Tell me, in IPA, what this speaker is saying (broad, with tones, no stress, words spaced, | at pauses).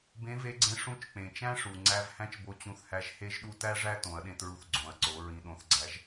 bẽ˧˥ve˧˥ɡ͡ǀẽ˧˥ ʂũ˧˥t͡ʃk͡pẽ˩t͡ʃæ̃˥ ʂu˩ ŋ͡ǀæ˧v hæ̃˥t͡ʃbo˧t͡ɕũ˧θhæ˧˥ʒ he˥ʒɗu˥ tæ˥ʐæ˥ tõ˩˧ɐ̯ɗẽ˧tɹu˧θ ɡ͡ǀõ˩˧ɐ̯ǀo˩˧ ɹĩ˧ɗõ˧˥θɡ͡ǀæ˧˥ʒ